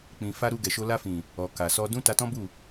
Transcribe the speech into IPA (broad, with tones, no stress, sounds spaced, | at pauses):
k͡p ĩ˨ f a˧ ɾ u˧ ɡ ɛ˨ ʃ o˧ l a˧ f ĩ˨ | ɔ˨ k a˨ s ɔ˧ d ũ˦ t a˧ t ɔ̃˦ b u˦˨